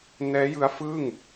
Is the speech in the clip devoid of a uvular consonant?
yes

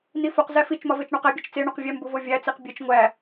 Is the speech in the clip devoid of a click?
yes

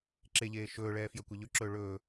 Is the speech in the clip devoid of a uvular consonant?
yes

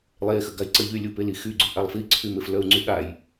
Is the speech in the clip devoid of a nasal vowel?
yes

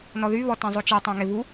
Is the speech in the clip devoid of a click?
yes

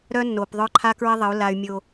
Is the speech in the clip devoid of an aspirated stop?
no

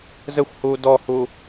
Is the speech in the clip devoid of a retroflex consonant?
yes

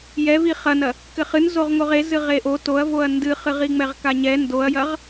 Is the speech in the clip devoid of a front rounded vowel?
yes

